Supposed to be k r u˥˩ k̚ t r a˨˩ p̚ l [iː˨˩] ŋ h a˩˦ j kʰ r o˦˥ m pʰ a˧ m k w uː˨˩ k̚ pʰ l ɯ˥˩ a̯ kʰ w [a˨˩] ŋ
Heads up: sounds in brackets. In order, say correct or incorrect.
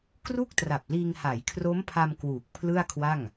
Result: incorrect: iː˧, incorrect: a˥˩

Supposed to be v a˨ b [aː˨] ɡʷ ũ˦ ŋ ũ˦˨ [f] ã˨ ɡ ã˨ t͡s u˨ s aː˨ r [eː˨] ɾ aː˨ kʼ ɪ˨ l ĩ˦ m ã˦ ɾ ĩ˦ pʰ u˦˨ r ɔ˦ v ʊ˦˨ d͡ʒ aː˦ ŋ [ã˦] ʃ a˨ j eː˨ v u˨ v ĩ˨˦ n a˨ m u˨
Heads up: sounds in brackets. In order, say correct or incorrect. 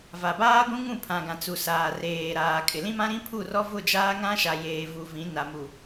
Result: incorrect: aː˦, incorrect: pʰ, correct, correct

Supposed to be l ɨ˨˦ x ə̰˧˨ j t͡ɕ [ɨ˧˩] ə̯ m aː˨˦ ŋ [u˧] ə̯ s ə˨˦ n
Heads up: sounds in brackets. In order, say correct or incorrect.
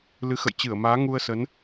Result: correct, correct

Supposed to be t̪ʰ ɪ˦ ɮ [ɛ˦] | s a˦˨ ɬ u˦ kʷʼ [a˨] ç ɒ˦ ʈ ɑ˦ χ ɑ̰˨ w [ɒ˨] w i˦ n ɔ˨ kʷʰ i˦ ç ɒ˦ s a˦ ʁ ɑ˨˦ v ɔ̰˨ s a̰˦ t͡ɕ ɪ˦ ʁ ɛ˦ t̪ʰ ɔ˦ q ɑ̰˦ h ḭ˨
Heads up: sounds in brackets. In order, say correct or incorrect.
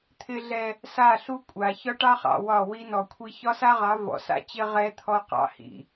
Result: correct, correct, incorrect: ɒ˦˨

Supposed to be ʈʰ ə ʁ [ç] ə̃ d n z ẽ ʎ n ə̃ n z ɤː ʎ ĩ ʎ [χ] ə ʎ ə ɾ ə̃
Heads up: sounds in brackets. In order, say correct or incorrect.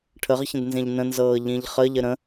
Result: correct, correct

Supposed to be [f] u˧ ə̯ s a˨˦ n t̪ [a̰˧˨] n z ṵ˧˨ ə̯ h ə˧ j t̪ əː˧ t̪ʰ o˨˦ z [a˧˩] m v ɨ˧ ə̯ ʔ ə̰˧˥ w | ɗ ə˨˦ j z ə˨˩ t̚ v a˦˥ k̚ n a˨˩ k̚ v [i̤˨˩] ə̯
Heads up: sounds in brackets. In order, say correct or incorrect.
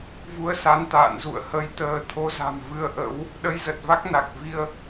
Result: incorrect: v, incorrect: a̰ː˧˨, incorrect: a̤˨˩, incorrect: i˧

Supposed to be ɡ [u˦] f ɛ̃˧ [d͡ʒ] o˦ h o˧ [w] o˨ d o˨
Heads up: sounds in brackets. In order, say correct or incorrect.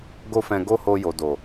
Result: incorrect: o˦, incorrect: ɡ, incorrect: j

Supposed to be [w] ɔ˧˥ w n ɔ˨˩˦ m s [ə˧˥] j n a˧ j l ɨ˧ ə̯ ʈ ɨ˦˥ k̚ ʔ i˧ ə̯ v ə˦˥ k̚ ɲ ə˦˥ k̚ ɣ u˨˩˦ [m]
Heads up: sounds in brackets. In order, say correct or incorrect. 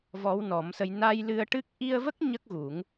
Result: incorrect: v, incorrect: ə˧, incorrect: ŋ

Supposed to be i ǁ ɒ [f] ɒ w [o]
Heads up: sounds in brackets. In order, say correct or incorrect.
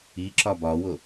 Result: incorrect: b, correct

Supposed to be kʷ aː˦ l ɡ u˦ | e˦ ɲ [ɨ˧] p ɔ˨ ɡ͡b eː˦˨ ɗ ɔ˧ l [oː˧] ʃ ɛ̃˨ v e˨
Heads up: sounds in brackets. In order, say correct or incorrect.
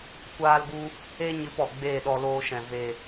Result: correct, correct

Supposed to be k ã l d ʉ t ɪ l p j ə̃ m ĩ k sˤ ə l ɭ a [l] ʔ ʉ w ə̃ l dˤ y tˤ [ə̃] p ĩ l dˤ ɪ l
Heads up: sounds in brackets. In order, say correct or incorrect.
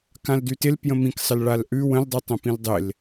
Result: correct, correct

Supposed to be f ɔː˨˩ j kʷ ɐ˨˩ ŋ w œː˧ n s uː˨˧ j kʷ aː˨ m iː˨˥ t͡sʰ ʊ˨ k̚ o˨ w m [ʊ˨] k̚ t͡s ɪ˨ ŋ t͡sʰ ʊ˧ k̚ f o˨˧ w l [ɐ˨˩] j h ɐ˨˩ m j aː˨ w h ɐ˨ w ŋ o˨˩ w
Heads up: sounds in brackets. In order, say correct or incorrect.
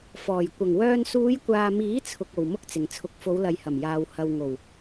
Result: incorrect: ʊ˥, incorrect: ɐ˨

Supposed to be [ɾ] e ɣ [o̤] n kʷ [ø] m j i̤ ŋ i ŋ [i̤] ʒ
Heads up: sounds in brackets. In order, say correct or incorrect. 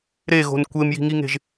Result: correct, correct, incorrect: e, incorrect: e̤

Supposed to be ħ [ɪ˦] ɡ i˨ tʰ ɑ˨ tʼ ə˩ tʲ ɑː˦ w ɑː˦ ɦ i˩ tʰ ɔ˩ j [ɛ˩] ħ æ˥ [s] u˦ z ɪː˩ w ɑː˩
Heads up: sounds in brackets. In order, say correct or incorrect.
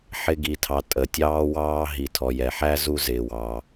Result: correct, correct, incorrect: z

